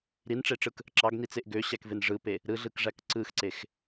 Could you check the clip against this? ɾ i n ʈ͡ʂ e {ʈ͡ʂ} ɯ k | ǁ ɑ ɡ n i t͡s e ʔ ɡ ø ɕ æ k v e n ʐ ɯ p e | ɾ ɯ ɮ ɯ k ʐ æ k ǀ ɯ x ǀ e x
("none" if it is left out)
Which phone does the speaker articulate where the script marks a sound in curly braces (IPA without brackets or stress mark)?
ʈ͡ʂ